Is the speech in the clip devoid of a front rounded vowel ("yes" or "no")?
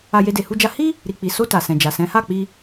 yes